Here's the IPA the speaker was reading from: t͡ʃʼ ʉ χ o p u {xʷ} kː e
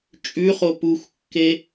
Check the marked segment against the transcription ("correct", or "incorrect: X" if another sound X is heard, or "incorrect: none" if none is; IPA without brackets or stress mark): correct